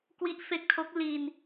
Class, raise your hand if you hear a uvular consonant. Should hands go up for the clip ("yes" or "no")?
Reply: no